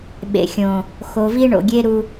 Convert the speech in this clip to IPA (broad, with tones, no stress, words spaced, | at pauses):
ɓḛ˨xʲõ˨ | xo˨vi˦ ɳo̰˨ ɡʲe˦ ɾu˦